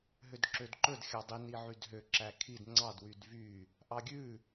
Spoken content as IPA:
ɦødǁødǃɵd xʲɑdˤi niʕydɦø ǁækʰid ŋ͡ǀɑd wydvy | ʔɑɡʲʉ

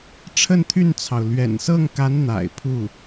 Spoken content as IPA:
ʈ͡ʂʰə˥˧nt̪ʰy˥˩nt͡sʰɑ˩ʊ̯ lɥɛ̰˨˩nsɤ˥˩ŋka˧˥n n̪a̰˨˩ɪ̯pʰu˥˩

